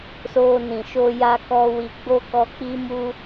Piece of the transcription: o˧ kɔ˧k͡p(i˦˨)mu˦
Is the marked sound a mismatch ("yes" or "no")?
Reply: yes